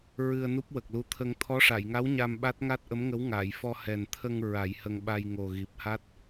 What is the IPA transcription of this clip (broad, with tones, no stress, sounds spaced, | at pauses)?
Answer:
ɹ ɨ˧ ə̯ n u˦˥ p̚ w ə˨˩ k̚ l u˧˥ t̪ʰ ə˧ ŋ t̪ʰ ɔ˧˥ ʂ a˨˩˨ j ŋ a˧˥ w ɲ a˧ m ɓ a˦˥ t̚ ŋ a˦˥ t̚ ʔ ə˧˥ m ŋ ə˧˥ w ŋ aː˨˩˨ j f ɔ˧ h ɛ˨˩ n t̪ʰ ə˧ ŋ ɹ a˨˩˦ j h ə˧ ŋ ɓ a˧ j ŋ o˨˩ ɣ i˨˩ p̚ h a˦˥ t̚